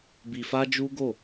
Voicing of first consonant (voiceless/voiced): voiced